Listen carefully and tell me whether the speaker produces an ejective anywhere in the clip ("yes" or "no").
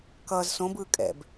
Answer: yes